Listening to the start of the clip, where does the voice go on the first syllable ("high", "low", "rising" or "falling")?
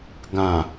low